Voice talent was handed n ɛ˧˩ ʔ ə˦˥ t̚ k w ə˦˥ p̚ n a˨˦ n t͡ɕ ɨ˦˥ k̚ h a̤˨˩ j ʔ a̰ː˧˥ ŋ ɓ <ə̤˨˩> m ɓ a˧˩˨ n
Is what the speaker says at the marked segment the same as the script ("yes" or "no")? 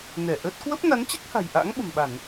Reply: yes